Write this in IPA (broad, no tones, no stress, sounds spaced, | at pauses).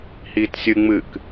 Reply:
h iː t sʲ ɨ ŋ͡m ɨ k